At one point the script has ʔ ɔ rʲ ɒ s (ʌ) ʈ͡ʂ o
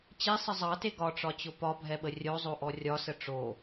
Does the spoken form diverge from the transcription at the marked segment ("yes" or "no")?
yes